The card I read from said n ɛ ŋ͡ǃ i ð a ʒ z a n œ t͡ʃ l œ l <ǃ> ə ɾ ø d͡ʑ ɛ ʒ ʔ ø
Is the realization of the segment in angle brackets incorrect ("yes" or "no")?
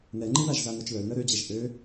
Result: yes